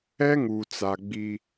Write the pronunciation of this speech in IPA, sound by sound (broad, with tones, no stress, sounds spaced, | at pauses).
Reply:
ɛ˦ ŋ u˨ t͡s a˨ ɡ͡b i˦